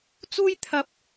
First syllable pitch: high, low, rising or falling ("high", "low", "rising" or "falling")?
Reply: high